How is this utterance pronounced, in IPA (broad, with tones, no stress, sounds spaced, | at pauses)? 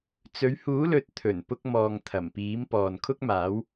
t͡s ɵ˨˧ ɥ h uː˨˥ l ɵ˨ t̚ t̪ʰ ɵ˨˩ n p ʊ˧ k̚ m ɔː˨ ŋ t̪ʰ ɐ˨˩ m p iː˨˥ m p ɔː˨ n kʰ ʊ˥ k̚ m aː˨˥ w